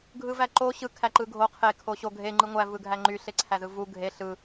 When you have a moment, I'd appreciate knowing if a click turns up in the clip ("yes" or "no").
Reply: yes